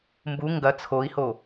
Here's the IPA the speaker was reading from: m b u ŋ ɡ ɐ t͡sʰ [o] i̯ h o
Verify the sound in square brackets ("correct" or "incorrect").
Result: correct